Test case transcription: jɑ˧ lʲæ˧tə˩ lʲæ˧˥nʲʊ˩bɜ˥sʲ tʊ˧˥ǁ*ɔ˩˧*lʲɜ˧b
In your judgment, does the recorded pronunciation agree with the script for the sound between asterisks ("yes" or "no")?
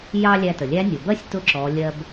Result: yes